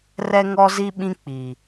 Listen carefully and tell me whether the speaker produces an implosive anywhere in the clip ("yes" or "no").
yes